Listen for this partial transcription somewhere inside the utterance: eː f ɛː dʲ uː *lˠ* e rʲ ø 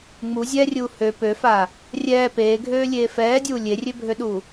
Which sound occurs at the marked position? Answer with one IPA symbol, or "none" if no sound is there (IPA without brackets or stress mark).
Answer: lʲ